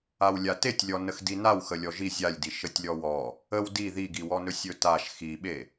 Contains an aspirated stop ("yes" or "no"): no